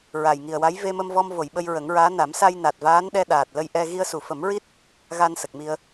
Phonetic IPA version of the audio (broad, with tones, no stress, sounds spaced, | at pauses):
ɹ a˨˩ j ŋ i˨˩ ə̯ w a˧˥ j v e˧ m ə˧ m v ɔ˧ m v o˨˩˨ j ɓ ə˧ j ɹ ə˨˩˦ ŋ ɹ aː˧˥ n a˨˩˦ m s a˧ j n a˨˩ t̚ v aː˧˥ n ɗ ɛ˧ ɗ aː˨˩ t̚ l ə˧ j ʔ ɛ˧ ɣ i˧ ə̯ s u˨˩˨ f ə˨˩˦ m ɹ i˦˥ t̚ | ɣ a˧ n s ə˨˩ k̚ m i˧ ə̯